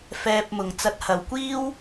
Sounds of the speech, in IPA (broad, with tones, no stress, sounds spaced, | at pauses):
f ɛː˧ p̚ m ʊ˨ ŋ t͡s ɐ˧ t̚ h ɐ˨˧ w kʷ iː˥ w